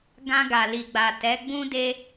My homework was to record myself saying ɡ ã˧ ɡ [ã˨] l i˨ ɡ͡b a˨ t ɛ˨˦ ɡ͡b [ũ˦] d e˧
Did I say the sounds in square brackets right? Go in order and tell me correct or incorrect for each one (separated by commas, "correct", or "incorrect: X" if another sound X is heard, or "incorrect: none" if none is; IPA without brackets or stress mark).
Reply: incorrect: a˨, correct